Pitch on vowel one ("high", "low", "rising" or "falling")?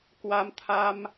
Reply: rising